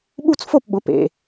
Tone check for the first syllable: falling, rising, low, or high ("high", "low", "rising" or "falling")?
falling